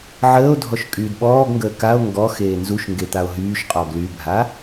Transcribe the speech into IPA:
ʕ əː o̯ dʱ ɔ ʃ kʼ yː d ɓ ɔː ɡ ŋ ɡ əː k a o̯ ŋ ɡ ɔ x eː n z u ʃ ŋ ɡ e t̪ a o̯ ɦ yː ʃ qʼ ɔ ɡ l y bʱ a

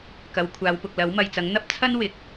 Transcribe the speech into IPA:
k ɐ˨˧ w kʷʰ aː˨˧ w p ʊ˨ k̚ l ɐ˨˥ w m ɐ˨ j t͡s ɐ˨˥ ŋ n̪ ɐ˥ p̚ t͡sʰ ɐ˥ n w ɪ˨˥ k̚

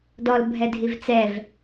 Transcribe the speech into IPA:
d ɔ l bʱ ɛ dʱ i v t͡s ɛ v

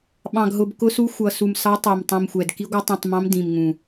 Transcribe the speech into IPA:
ɓ ɑ̃˨˩ ɡ ɦ ʊ˨˩ b k ʊ˧˥ s u˧˥ xʷ ʌ˨˩ s u˨˩ m s ɑ˧˥ tˤ æ˨˩ m tˤ ĩ˨˩ m xʷ ɛ˨˩ d k i˧˥ ɡʷ ʌ˧˥ tˤ ũ˨˩ tˤ m ɑ̃˧˥ m d ĩ˨˩ m ŋ ũ˨˩

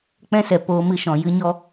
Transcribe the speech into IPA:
k͡p ɛ̃˧ s ɛ˨ p oː˧ m ɨ˧ ʃ ɔ̃˨ j ɨ˧ ɲ ɔ˧

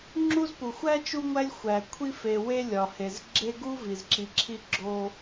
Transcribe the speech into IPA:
ŋ͡ǁ u˥ z p u˩ xʷ æ˥ t͡ʃ u˦ ŋʷ æ˦ lʲ xʷ æ˩ kʷʰ i˥ f e˨ w e˥ lʲ ɒ˩ h e˩ z ɡ͡ǁ e˦ ɡ u˥ v i˩ z ǁ i˨ ǁʰ i˦ ɡ͡ǁ o˦

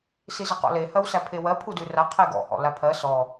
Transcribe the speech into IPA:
s i z ə q ɔ̰ l e h ɜ w s æ pʰ e w ɜ pʰ u d ʉ r a qʰ e ɡ ɔ̰ h ɔ̰ l a pʰ ɜ s ɔ

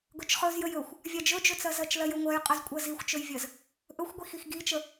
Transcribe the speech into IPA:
ɡ ɵ t͡ʃ χ ɵ z j ə j ɵ xʷ | vʲ a d͡ʒ ɵ d͡ʒ ɵ t͡s ɜ z ɜ t͡ʃ l ɜ j ɵ ŋʷ ɜ j qʼ ə z kʷʼ ɜ z i xʷ t͡ʃ ɵ j vʲ ɜ z | ʔ ɵ xʷ ɡʷ i x i x ɡ i t͡ʃ ə

